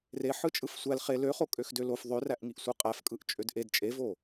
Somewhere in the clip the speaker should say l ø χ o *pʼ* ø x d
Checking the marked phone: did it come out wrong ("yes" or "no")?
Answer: yes